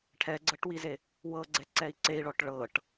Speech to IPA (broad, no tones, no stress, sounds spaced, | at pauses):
ʈʰ ɛ ɡ͡ǀ ɤ ʈ w i z e | w ɤ ɡ͡ǀ ɛ ǀ ɛ i̯ ǀ e i̯ ɭ ɔ ʈ ɭ ɤ ʈ